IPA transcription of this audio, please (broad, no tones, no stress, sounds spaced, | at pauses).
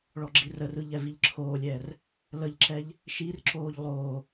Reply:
ɭ ɔ ɡ͡ǁ i r ə r ɯ ʎ ɛ v i ʎ ǁʰ oː lʲ ɛː r | l ə ʎ ǁ ɛ ʎ | ʃ i r ǁ oː ʎ lˠ oː